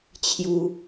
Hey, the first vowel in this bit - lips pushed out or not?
yes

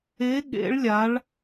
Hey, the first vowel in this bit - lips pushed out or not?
no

